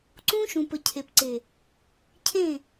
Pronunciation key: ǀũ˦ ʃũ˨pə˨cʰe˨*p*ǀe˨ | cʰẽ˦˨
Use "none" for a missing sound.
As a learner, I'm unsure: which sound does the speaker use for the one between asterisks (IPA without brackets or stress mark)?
p